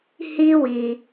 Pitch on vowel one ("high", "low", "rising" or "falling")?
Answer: high